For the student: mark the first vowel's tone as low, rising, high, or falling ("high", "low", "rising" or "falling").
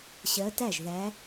rising